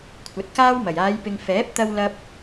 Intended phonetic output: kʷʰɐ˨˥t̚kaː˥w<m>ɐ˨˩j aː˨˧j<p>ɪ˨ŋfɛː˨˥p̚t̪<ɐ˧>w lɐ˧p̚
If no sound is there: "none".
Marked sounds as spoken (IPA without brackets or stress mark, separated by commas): m, p, ɐ˧